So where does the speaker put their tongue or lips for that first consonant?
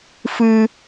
lips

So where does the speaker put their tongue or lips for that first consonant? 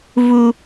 lips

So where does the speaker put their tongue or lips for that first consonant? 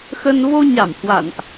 velum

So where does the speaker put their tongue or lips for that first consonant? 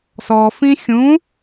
tongue tip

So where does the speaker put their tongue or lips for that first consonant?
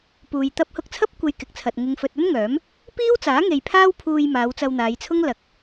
lips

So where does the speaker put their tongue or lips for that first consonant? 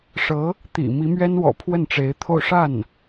retroflex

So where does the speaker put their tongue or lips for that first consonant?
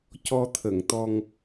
palate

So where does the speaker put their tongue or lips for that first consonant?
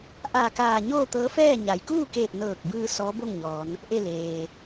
throat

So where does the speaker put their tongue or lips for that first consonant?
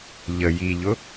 palate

